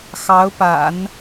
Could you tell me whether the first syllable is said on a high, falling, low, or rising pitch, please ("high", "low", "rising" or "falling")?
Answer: rising